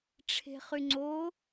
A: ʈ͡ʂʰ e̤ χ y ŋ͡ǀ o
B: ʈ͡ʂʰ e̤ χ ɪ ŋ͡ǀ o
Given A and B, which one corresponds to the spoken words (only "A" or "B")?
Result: A